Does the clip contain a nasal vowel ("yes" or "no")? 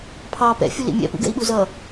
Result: no